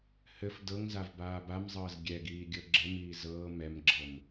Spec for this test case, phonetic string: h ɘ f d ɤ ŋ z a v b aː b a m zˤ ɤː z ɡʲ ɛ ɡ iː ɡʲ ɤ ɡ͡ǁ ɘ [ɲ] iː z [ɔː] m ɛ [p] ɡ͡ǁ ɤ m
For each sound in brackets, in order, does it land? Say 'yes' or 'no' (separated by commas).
no, no, no